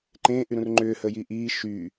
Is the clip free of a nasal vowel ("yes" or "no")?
no